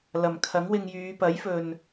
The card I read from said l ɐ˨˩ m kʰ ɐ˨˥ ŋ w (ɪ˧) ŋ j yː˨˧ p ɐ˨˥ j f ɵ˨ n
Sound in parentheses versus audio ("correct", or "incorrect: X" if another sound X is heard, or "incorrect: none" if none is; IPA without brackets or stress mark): correct